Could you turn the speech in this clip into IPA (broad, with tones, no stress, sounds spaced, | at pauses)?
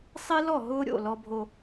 sˤ e˦ l ɔ˦˨ ɦ ʊː˦ ɾʲ o̰˦˨ l ɔ˦ bʱ o˦